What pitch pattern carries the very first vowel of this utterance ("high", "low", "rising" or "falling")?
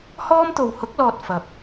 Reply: high